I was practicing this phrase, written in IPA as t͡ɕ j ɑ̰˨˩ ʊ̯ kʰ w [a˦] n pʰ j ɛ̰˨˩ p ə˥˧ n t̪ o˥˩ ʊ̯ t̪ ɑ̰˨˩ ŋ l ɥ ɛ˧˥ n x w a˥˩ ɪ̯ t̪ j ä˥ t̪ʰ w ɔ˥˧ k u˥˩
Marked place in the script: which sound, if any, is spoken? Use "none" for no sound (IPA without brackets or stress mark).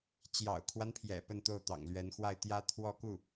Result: a˦